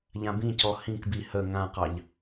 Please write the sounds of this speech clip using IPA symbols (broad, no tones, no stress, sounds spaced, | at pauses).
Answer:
ʎ ã b ĩ c ɔ h ĩ k b i h ə ŋ ã q ɑ ʎ